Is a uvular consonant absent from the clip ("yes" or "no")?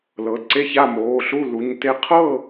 no